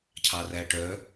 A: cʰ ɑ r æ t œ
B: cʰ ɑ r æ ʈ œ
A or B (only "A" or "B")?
B